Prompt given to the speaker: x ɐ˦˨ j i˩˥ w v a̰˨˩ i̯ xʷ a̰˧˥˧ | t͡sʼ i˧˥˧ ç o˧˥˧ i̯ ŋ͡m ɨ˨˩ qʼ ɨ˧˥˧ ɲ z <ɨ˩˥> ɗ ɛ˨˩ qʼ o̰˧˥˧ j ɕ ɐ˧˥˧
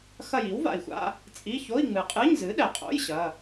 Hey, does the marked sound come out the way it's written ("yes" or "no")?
yes